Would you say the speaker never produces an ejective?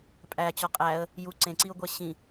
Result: no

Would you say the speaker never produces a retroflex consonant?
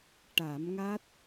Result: no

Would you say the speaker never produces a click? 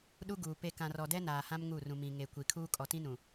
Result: yes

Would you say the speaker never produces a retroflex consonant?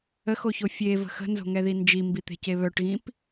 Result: no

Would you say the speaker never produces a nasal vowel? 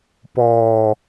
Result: yes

